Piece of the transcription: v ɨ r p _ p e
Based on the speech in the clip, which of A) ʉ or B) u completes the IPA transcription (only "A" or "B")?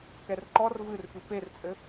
A